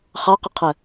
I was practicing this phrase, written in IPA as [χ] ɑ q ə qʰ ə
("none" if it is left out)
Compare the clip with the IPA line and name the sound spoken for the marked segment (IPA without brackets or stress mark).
χ